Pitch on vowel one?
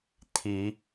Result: rising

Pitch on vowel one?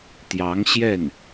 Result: rising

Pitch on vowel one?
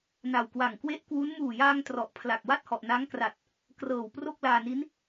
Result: low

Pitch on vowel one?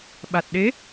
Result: low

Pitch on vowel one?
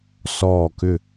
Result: falling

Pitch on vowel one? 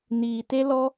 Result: low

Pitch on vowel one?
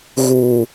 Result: low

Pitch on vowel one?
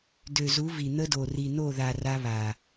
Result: low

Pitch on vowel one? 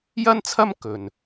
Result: high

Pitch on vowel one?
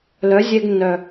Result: rising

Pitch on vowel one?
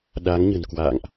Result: rising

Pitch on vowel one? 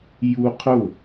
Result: high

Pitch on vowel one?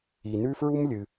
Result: low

